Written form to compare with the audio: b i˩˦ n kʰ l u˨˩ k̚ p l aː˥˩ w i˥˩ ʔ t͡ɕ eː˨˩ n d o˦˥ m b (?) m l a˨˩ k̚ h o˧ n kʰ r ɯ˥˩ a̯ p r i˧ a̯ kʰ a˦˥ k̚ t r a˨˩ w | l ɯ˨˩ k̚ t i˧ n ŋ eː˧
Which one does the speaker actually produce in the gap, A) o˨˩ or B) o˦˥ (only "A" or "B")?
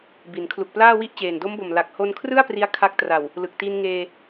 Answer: A